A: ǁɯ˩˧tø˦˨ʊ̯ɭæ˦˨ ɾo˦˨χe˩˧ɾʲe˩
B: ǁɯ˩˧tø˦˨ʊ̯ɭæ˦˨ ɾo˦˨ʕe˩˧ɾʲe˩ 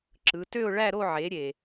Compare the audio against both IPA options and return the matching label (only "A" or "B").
B